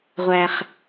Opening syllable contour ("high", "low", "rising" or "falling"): low